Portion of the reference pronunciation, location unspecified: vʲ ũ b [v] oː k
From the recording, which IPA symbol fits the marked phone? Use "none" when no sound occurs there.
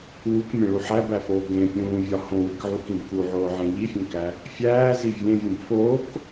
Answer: f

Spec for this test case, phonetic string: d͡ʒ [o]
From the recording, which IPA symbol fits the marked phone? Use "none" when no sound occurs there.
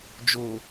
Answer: o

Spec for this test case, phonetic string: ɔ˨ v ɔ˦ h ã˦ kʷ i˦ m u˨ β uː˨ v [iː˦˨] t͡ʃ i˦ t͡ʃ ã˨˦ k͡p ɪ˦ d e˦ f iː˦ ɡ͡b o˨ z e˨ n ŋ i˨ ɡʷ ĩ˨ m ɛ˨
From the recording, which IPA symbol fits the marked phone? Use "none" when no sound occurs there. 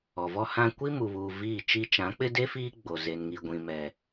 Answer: iː˦˨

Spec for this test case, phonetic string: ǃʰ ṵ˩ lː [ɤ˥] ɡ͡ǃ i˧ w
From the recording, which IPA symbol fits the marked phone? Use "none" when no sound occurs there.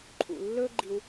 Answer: ɵ˥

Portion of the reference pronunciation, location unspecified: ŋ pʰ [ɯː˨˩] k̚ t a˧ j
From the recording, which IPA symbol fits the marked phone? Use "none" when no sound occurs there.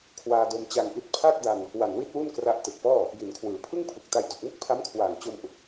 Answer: ɯ˨˩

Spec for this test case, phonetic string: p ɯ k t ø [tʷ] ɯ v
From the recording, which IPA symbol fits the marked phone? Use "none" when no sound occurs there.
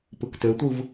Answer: tʷ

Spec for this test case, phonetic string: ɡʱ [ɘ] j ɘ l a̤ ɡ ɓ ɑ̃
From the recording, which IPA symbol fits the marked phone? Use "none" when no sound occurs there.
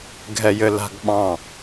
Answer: ɛ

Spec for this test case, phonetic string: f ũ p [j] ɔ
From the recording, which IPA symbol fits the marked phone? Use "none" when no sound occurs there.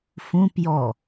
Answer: j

